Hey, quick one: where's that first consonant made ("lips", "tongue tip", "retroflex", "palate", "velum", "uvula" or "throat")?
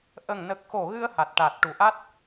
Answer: throat